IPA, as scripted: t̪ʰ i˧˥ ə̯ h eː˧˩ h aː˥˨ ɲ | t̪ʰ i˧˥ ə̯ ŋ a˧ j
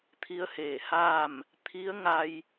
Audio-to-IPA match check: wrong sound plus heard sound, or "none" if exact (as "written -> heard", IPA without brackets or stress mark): ɲ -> m